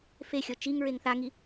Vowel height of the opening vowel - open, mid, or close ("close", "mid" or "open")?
mid